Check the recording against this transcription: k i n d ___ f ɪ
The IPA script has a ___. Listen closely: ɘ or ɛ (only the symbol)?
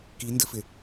ɘ